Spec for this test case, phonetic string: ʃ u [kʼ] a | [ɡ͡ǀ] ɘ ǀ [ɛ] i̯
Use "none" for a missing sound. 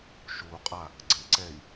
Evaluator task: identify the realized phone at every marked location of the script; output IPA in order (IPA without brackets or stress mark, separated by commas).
qʼ, ɡ͡ǀ, ɛ